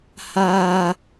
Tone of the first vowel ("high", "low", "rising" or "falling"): high